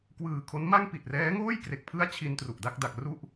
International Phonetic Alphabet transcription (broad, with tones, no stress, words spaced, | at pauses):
kwɯː˨˩kʰo˦˥nma˥˩ŋ pi˨˩t̚rɛː˦˥ŋoː˥˩j kre˨˩k̚pʰɯ˦˥a̯ t͡ɕʰi˧n tru˨˩ʔda˥˩k̚ da˨˩k̚ ru˥˩ʔ